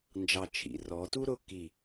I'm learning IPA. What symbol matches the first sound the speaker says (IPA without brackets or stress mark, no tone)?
n